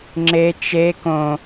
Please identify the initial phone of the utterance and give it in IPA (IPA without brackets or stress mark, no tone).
ŋ͡ǁ